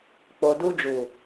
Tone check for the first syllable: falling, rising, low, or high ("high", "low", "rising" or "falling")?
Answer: low